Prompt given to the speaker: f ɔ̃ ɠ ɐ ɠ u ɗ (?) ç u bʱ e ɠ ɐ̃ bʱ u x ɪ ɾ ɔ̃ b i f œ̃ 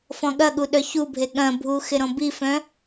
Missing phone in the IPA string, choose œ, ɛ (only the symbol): œ